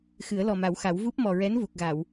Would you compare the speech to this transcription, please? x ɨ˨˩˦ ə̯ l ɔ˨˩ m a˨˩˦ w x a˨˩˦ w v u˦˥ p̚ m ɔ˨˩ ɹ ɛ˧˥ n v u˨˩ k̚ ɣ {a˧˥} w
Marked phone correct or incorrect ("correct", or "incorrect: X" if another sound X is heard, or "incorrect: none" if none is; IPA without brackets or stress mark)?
incorrect: a˨˩˨